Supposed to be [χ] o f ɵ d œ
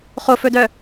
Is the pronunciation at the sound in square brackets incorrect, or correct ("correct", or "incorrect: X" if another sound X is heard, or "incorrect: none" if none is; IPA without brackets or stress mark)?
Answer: correct